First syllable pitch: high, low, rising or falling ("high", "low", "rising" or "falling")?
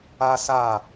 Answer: high